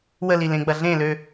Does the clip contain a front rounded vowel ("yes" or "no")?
yes